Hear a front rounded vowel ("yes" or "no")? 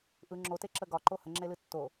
no